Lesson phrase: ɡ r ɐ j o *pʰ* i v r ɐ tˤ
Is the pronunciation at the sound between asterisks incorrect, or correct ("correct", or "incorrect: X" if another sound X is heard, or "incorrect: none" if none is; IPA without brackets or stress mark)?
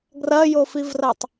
incorrect: f